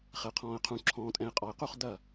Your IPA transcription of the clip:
χ ɛ˨ qʰ ɔ̃ː˨ ə̯ qʰ ũ˨ ǁʰ ɔ̃ː˨ tʼ ɛ̃˨ ɪ̯ qʼ ɔ˨ ɪ̯ q u˦˨ χ d ɐ˦˨

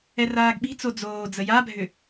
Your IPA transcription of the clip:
ɛ r aː ɡ ɓ i̤ t͡s o d͡z oː d͡z ə j a bʱ ʏ

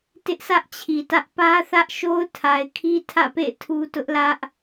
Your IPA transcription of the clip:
t ɪ˦ ʔ s ä˦ ʔ t͡ɕʰ i˨ t ä˦ ʔ p ä˦ θ ä˦ ʔ ʃ o˦ ʊ̯ tʰ a˨ ɪ̯ kʰ i˦ tʰ ä̰˦˨ p ḛ˦˨ ɪ̯ tʰ u˦ t ʊ˦ ʔ l ä˦ ʔ

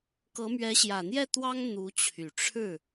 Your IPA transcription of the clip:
k ɤ˧˥ m ɥ ɛ˧˥ ɕ j ä˨˩ n̪ j ɛ˥˩ t̪ w ɑ˥ ŋ n̪ u˧˥ t͡ɕʰ y˨˩ ʈ͡ʂʰ ɻ̩˥˩

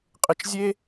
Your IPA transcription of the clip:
qʼ ɪ˧ t͡ʃ zʲ e˦

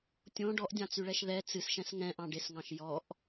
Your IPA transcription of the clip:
tʲ õ ɖ ɔ ʔ dʲ ɑ̃ t͡s y ɭ ɛ ʃ ð ɛ t͡s ɨ s ʃ ɛ̃ s ŋ ɛ̃ ʔ ɑ̃ ɖ e s ŋ ɑ̃ ʃ j ɔ ʔ

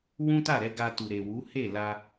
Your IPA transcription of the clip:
w ũ˦ t a˦˨ ɾ ɛ˧ ɡ a˧ t u˨ ɾ e˨ w u˨˦ h e˦˨ l a˧

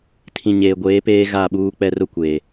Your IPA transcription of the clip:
tʰ ĩ˨ ɲ eː˨ ɡʷ eː˨˦ p eː˦ ɣ a˦˨ ɓ uː˦ k͡p ɛ˦ r ʊ˦ kʷ eː˨

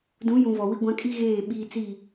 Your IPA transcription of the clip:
d ũ˨˦ j ũ˨ v ɔ˨ w i˦ ɡʷ ã˦ kʼ i˦ ɣ eː˦˨ ɓ iː˦ t͡s i˦˨

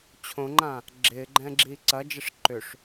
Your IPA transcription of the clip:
t͡ɕʰ õ ŋ͡ǃ ã | ɡ͡ǁ ɪː ɡ͡ǃ ɛ̃ː ɡ͡ǁ iː ǀ ɐ d͡ʒ ɛ ʂ ǃ ʏ ʂ

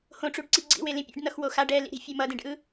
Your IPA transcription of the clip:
h õ ʈ͡ʂ u ɖ ǀ i ɡ͡ǀ ḭ w e l ĩ pʲ ḛ ɖ n ʌ x w o x a ɖ ɛ l ḭ ɾ i̤ fʲ e m ʌ d ẽ ɖ ʔ ɯ

